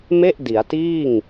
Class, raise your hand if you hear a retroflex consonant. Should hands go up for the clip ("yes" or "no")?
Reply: no